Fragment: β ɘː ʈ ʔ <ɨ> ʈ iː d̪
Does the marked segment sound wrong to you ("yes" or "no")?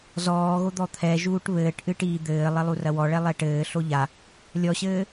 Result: no